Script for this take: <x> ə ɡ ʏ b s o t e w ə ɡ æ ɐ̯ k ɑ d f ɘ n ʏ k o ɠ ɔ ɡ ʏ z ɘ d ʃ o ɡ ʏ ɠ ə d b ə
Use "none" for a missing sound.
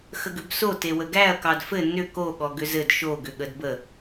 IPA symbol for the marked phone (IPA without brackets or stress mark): x